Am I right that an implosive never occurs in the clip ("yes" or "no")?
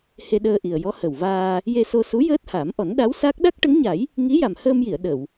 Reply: no